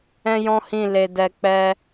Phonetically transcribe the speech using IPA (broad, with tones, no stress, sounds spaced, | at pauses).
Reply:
ɛ̃˦ j ɔ̃˦ h ĩ˦˨ l e˧ d ɛ˧ k͡p ɛ˦